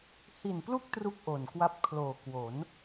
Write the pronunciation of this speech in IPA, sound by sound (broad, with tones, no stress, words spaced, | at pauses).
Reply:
hi˨˩nplu˦˥k̚ tru˥˩k̚ʔo˨˩nkwa˦˥p̚ kʰloː˨˩kwo˩˦n